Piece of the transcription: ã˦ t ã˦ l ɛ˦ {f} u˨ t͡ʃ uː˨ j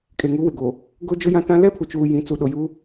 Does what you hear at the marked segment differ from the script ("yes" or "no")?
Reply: yes